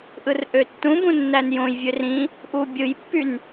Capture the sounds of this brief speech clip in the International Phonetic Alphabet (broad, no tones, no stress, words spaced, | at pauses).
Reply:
ʔɯrʔøtːũbũ nːænjõjvʲør ĩ | ʔubʲɯjpːyn